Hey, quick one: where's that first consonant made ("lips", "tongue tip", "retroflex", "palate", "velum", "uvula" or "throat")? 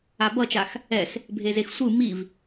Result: lips